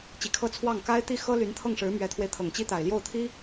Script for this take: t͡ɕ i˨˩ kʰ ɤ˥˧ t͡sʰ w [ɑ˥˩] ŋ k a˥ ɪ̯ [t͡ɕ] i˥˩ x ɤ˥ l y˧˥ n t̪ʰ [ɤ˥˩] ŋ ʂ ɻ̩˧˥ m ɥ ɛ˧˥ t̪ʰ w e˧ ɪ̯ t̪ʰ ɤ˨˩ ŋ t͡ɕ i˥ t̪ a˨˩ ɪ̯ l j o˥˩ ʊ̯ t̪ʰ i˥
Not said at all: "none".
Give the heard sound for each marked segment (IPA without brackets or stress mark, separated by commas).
ɑ˥˩, t̪, ɤ˥˩